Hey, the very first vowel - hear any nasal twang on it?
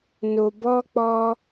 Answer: no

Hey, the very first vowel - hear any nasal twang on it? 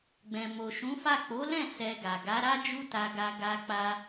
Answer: yes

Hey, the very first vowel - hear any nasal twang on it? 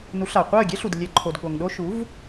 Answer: no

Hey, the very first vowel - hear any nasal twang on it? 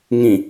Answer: yes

